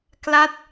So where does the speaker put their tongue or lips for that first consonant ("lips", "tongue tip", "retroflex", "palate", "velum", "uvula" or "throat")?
velum